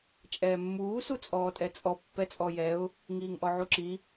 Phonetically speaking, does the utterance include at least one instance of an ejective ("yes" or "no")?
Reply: yes